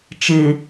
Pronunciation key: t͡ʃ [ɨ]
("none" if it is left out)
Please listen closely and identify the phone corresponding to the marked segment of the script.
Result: ɨ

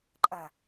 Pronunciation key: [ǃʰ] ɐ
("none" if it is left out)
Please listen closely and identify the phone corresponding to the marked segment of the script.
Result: ǃʼ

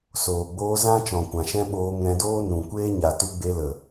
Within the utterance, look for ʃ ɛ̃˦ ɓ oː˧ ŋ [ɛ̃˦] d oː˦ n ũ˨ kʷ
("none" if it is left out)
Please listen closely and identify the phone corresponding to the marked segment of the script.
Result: ɛ̃˧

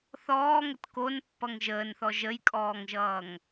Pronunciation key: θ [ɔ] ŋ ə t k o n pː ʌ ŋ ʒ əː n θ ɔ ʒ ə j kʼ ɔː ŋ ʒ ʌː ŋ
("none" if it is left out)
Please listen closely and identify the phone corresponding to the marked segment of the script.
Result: ɔː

